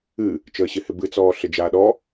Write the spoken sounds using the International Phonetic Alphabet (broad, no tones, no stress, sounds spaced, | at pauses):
ɨ | t͡ʃ əː ɕ ɪ h ɪ b ɨ t͡s ɔː ɬ ɪ d͡ʒ aː ɗ ɔ